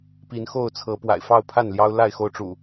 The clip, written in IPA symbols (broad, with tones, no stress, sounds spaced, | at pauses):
p i˨˦ n x o˥˨ ʊ̯ t͡sʰ ɤ˨˦ p w a̰˨˩ ɪ̯ f ɑ˥˨ ʊ̯ pʰ a˥˨ n l j ɑ˦ ʊ̯ l a˥˨ ɪ̯ x o˥˨ ʊ̯ ʈ͡ʂ ṵ˨˩